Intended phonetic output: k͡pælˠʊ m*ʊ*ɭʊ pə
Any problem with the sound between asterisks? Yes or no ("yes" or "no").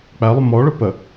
yes